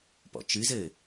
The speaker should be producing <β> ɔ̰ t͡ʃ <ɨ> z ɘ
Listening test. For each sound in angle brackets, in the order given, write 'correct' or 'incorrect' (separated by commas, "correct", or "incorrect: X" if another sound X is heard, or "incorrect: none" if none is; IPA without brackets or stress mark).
incorrect: p, correct